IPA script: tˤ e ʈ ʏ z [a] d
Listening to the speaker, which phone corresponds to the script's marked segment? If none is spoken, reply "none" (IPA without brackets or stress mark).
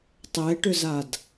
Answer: a